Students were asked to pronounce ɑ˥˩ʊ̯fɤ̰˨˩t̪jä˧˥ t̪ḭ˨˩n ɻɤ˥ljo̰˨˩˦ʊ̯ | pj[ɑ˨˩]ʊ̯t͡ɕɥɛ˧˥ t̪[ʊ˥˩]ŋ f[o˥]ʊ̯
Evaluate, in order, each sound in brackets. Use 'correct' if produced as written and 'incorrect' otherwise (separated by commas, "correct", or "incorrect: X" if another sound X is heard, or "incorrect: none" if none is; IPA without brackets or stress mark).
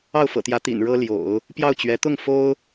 incorrect: ɑ˥˩, correct, correct